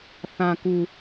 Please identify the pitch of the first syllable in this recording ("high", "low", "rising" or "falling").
low